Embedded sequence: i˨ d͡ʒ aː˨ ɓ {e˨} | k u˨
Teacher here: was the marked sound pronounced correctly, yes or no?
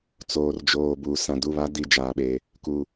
yes